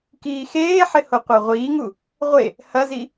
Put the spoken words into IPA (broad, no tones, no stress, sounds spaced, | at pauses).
k iː x eː ħ ɪ h o qʷ a ʁʷ iː ŋ u | ʁʷ e | h ɐ z i